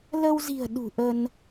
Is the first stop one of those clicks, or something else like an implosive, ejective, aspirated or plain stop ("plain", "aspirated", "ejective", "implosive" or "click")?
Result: implosive